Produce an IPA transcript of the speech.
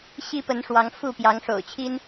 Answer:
ɕi˦pə˨˦n ʂwɑ˨˦ŋfu˥˨ pjɑ˨˦ŋʂo̰˨˩ʊ̯t͡ɕʰi˦n

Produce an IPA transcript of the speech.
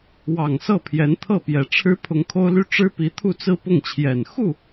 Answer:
wɑ˨˩ŋ sɤ˥˩pʰjɛ˧˥nt̪ʰɤ˥˩ pjɛ˨˩ʈ͡ʂʰɻ̩˥ pʰʊ˧˥ŋkʰo˥ʊ̯ly˥ ʈ͡ʂɻ̩˥pi˧˥ t̪ʰu˥˧t͡sɹ̩˥˧pʊ˥˩ŋt͡ɕʰjɛ˨˩n xu˥˩

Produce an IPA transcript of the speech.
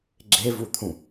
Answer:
ɡ͡ǁevut̪ʰũ

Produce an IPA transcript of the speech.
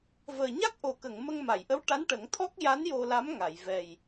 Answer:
vəː˨˩ɲa˦˥k̚ʔo˨˩ kə˨˩˨ŋmə˧ŋ ma˨˩˨jʔə˧˥w ʈa˧˥nʈə˨˩˦ŋt̪ʰɔ˦˥k̚ ja˧˥n jo˧la˧˥mŋa˨˩˨jvɛ˨˩j

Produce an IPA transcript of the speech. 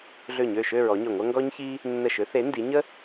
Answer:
ɮø˧˩ɲø˧˩ ʃø˥˧ɹɔ˨˦ɲø˧˩ŋʷɐ˥ ŋɡɔ˥ɲçi˥ | nːə˧˩ʃø˨˦θe˨˦ ndi˨˦ɲə˥

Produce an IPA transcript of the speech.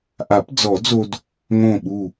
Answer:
ʔa˨˩˦pd͡zɔ˨˩˦d͡zo˧d | ŋõ˧˩ɓu˧˩

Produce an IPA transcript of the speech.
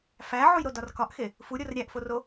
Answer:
fæʕujɾodɒr kɒʔxe | fuɾʲor ɾʲæʔforo

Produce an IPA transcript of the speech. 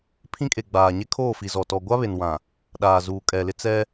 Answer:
pʰĩ˦kʼe˨ɡ͡baː˨ ɲe˦kʰoː˦˨fi˨zɔ˨ tɔ˨ɡʷa˦βe˨nwã˨ | ɗaː˨zuː˨kʼɛ˨lɪ˦ t͡sɛ˦

